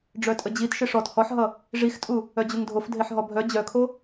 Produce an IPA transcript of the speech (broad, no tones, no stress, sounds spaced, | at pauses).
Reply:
ɖ͡ʐ œ tʼ ə d͡ʑ i t ʃ ɪ ʂ ɔ t h ɔ ħ ɦ ʌ | ʐ i x tʼ u | œ d͡ʑ u ŋ dʱ o f dʱ e ħ ɦ ɔ bʱ œ d͡ʑ œ kʰ o